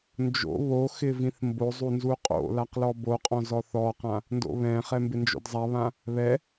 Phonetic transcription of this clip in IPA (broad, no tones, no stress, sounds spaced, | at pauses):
n d͡ʒ o̰ β o x ɪ v ĩ θ m b o zˤ u n z u qʼ o̰ l a q l ɔ b o qʼ ɔ̃ z ɔ θ ɔ q ã | n d o̰ β ɛ̃ χ ɛ m b ɪ n d͡ʒ o̰ d zˤ a β ã | β ɛ